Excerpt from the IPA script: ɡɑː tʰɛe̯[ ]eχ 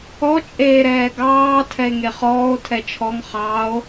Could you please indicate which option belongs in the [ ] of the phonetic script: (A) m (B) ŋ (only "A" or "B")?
B